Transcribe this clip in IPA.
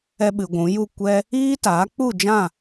ɛ˧ ɓ ɨ˨ ɡʷ ũ˨˦ j u˦˨ kʷ ɛ˦ | iː˦ t aː˨˦ k͡p u˦˨ d͡ʒ ã˦˨

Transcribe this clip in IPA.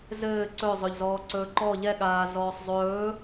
z ɘː ǀ ɵ zˤ ɵ ʎ z ɔː ǀ ɵː ǃ ɔ ʎ ɛ ɠ aː z ɔː sˤ zˤ ɵː

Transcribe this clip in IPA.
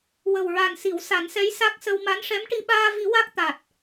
w ə˨˩ w ɹ a˨˩ n s i˨˩˦ w s a˨˩˦ n s ɛ˧˥ j s a˦˥ k̚ s ə˧ w m a˧˥ n ʂ ɛ˧˥ m ʈ i˧ ɓ aː˧ v i˨˩˦ w a˦˥ k̚ t̪ a˨˩ t̚

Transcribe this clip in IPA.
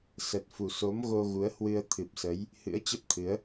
s ə˨˩ t̚ f u˨˩ s o˨˦ m ɣ o˧ ɣ u˨˦ ə̯ h w ɨ˧ ə̯ t̪ʰ ɨ˨˩ p̚ s ə˨˦ j | h ɨ̰˧˥ ə̯ t͡ɕ ə˦˥ p̚ t̪ʰ ɨ˨˦ ə̯

